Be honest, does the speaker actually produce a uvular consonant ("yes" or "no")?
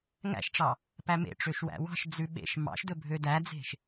no